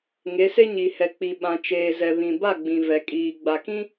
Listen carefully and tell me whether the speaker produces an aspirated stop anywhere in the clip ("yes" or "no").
no